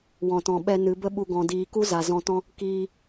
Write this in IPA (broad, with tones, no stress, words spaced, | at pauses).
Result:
wɔ̃˨tɔ̃˨ɓɛ˧ nɨ˨˦bə˦ɓu˧ ɡɔ̃˨diː˨ ku˦za˨zɔ̃˧ tɔ̃˦ | kiː˧